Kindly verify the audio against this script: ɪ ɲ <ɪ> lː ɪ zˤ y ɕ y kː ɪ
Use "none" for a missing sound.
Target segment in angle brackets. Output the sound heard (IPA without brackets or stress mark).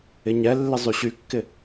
ɛ